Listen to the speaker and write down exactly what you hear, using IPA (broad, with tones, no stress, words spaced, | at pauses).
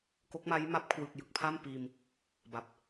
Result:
ko˦˥k̚ma˦˥j ma˦˥p̚kʰwɯ˨˩k̚jɯ˨˩k̚pʰa˥˩m piː˧m | ba˨˩p̚